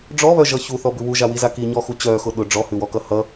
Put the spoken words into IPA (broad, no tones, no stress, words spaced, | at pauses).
ɖ͡ʐɔβœʒʌ çuθɔbʉ wuʒawiza kiɲɔxu t͡ɕœxʊ ɗʊ ɖ͡ʐɔhʉwɔkʌ hʌ